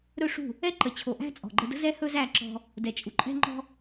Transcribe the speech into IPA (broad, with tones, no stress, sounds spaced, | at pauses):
ɾ ɵ˦˨ ʂ ṳ˦˨ | ɛ˦ ǃ ə˨ t͡ɕʰ o˨ ʔ æ̤˦ t͡sʼ ɔ̤˨ ɡ͡ǃ ə˧ d ə̤˦ z ɛ˦ h ɵ˦ z æ˦˨ ǁ ɔ̤˧ | d ɛ˨ t͡ʃʼ u˨ ǃʼ ɛ̤˦ ŋ͡ǃ ɔ̤˦